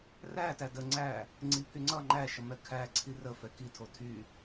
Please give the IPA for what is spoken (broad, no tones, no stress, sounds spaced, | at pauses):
r æ t æ d ə ŋ͡ǀ æ | ŋ͡ǀ i pʰ y ŋ͡ǀ ʌ ŋ͡ǃ æ ʃ ʌ m ɛ kʰ æ ǀʰ i r ə f ɛ k i tʰ o tʰ y